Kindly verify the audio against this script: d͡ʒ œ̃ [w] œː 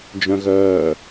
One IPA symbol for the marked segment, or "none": ɣ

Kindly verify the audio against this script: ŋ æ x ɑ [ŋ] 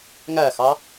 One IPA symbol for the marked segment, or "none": none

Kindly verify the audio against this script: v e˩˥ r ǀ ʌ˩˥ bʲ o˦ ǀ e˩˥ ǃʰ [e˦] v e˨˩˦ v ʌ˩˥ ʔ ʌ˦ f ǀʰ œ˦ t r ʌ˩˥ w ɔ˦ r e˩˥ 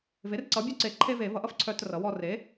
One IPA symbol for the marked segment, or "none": e˦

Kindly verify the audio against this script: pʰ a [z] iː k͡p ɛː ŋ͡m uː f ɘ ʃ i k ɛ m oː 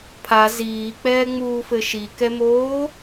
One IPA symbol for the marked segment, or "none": z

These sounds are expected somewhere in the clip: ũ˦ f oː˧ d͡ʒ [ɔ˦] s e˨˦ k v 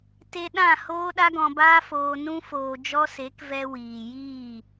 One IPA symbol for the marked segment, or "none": ɔ˦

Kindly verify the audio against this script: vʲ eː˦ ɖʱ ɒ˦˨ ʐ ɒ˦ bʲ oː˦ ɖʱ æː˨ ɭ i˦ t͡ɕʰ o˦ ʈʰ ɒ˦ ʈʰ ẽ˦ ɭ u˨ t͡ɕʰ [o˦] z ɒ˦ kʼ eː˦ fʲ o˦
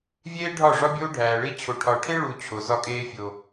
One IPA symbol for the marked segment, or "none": o˨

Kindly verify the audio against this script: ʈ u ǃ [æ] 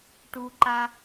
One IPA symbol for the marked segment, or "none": a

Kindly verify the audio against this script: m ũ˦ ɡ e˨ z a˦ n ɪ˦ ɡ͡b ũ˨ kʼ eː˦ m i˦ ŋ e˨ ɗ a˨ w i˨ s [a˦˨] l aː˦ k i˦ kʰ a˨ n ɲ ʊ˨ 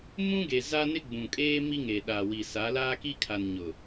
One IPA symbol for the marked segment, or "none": a˨˦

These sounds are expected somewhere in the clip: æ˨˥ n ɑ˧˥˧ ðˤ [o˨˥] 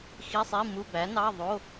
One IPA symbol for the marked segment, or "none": o˧˥˧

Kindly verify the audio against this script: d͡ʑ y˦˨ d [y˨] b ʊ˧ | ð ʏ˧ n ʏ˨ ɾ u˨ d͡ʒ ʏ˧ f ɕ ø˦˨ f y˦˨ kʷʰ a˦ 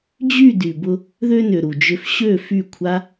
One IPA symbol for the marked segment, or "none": y˨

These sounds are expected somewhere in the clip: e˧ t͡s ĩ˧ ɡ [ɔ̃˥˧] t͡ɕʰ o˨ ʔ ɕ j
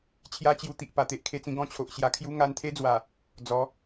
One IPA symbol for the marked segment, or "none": ɔ̃˥˧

